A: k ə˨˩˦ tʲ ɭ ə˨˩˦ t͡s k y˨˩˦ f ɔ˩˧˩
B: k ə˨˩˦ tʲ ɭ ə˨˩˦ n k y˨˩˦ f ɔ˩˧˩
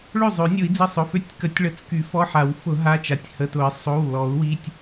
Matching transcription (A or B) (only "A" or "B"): A